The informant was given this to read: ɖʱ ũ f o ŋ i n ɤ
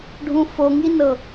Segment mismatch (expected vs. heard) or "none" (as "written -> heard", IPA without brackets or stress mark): none